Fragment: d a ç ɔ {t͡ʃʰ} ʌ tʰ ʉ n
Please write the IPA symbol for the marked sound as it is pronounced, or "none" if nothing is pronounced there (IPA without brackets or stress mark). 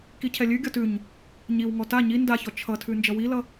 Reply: t͡ʃʰ